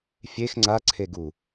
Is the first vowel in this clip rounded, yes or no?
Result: no